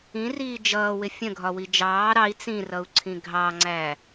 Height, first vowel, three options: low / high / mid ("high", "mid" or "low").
high